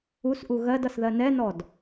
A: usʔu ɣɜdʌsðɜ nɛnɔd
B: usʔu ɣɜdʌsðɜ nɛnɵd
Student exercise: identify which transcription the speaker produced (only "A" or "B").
A